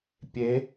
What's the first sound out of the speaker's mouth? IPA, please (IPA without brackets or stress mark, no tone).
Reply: pʲ